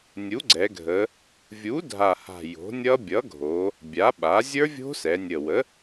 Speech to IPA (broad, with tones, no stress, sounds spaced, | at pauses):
nʲ u˩˥ ɡ͡ǀ ɛ˩˧ ɡʱ ə˩˧ | vʲ u˩˥ dʱ a˨˩ h a̤˨˩ j o̤˩˥ nʲ ʌ˦˥ bʲ ʌ˩˥ ɡʱ o˩˧ | bʲ a˩˥ ɓ a˩˥ zʲ ə˞˦˥ vʲ o̤˦˥ s ɛ˩˧ nʲ ə˨˩ w ə˩˥